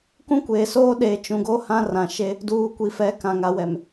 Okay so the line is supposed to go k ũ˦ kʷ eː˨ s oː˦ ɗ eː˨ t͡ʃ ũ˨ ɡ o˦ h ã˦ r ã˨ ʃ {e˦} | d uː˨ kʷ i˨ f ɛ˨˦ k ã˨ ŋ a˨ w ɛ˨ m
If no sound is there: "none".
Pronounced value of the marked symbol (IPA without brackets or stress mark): e˦